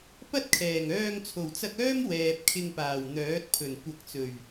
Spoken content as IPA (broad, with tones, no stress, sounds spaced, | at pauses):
p ɐ˥ t̚ kʰ ɛː˨˩ ŋ œː˧ ŋ t͡sʰ o˨˩ w t͡s ɐ˧ k̚ œː˥ m w ɛː˨ p̚ kʰ ɪ˧ ŋ p aː˨˩ w n̪ œː˨˥ t̚ pʰ ɵ˨˩ n kʷ ɐ˨˥ k̚ t͡s ɵ˨˩ ɥ